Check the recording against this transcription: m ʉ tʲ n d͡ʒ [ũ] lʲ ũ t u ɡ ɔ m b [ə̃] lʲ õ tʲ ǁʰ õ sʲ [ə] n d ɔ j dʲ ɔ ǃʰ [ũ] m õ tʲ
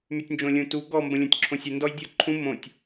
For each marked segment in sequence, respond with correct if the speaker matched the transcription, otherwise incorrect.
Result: incorrect, correct, correct, correct

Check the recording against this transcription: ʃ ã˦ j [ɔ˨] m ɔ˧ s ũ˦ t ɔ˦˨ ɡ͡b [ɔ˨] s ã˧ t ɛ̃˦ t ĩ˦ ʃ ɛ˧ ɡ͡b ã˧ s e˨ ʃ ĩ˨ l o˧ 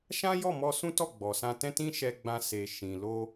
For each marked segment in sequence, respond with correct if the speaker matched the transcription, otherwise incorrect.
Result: incorrect, correct

